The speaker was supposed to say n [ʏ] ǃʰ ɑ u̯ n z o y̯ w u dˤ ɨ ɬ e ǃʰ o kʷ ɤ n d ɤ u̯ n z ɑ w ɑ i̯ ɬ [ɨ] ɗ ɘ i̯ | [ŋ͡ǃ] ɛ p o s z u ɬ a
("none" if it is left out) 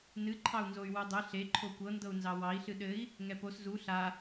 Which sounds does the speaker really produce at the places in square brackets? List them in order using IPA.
ɨ, ɨ, ŋ

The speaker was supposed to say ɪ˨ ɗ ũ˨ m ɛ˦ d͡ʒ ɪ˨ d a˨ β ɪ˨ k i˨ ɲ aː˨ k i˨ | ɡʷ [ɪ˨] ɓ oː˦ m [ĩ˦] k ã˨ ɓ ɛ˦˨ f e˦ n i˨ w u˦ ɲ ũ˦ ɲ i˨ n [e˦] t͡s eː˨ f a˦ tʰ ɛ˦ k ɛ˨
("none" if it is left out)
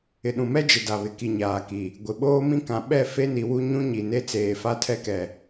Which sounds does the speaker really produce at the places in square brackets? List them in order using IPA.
ɪ˨, ĩ˦, e˦

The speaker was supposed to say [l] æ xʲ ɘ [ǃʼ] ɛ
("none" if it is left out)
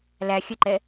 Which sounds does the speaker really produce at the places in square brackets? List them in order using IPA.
l, ǃ

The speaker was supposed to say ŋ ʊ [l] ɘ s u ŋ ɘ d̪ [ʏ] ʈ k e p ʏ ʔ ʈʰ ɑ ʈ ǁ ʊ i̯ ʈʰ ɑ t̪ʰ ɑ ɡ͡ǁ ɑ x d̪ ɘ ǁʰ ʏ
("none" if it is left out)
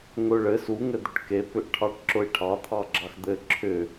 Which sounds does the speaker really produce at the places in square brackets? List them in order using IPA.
ɭ, ʏ

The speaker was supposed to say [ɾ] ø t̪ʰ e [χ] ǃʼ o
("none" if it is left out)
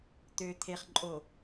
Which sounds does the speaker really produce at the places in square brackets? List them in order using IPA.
t̪, χ

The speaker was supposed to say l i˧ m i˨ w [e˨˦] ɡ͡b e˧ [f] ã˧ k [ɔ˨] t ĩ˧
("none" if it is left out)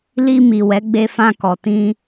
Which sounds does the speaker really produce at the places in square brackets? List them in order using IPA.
ɛ˨˦, f, ɔ˨

